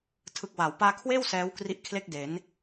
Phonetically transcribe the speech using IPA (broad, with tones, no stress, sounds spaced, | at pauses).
tʰ ɯ˨˩ k̚ w a˩˦ w p aː˧ kʰ w eː˥˩ w s ɛː˦˥ w k r i˦˥ ʔ kʰ l e˥˩ k̚ d e˩˦ n